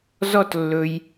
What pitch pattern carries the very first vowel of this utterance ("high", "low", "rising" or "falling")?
high